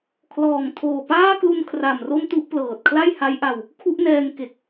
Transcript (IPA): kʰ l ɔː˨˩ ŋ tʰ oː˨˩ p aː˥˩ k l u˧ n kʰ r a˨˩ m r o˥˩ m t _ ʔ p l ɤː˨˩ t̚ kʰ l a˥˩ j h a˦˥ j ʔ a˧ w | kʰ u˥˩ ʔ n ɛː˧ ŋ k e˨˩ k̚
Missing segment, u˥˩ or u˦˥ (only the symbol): u˥˩